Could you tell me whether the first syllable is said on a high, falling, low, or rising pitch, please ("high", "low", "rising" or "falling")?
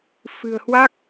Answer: low